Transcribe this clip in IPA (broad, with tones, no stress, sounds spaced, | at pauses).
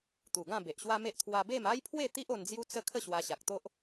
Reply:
t̪ u˨˩ ɡ ã˥˧ b e˨ ʔ ɕ w a˦ m e˦ ʔ t̪ʰ w a˧ b e˥˧ m a˦ j pʰ w e˥˧ t̪ i˦ ʔ o˧ n d͡z j u˦ t͡s ə˥˧ kʰ ə˥˧ ɕ w a˧ ɕ a˨ k̚ t̪ o˦ ʔ